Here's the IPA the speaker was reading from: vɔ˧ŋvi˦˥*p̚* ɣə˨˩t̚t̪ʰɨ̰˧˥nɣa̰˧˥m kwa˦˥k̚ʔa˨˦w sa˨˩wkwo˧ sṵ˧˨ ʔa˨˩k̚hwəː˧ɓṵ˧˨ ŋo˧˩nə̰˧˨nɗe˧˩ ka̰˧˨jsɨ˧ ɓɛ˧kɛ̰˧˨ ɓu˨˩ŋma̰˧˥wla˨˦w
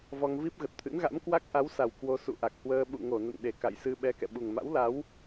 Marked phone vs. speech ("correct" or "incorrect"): correct